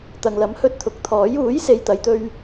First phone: t̪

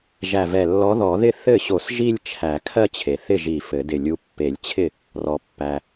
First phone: ʒ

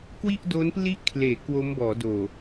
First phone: k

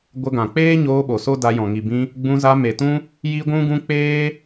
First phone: ɡʷ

